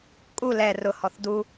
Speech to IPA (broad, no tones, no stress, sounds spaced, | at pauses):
kʼ u l ɛ r ʊ h ɔ θ d u